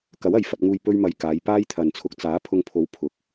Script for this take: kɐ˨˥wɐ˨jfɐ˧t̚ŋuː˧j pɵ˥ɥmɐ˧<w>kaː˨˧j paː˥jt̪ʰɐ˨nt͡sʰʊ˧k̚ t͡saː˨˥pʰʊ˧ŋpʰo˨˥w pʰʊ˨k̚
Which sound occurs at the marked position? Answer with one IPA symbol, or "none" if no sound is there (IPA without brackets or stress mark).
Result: j